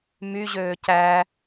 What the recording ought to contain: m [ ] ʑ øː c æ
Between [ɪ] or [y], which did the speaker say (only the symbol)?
y